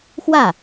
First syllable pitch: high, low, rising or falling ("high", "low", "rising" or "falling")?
falling